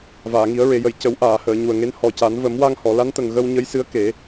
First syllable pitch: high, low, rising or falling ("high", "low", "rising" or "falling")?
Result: low